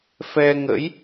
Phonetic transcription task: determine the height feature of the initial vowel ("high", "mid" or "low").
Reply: mid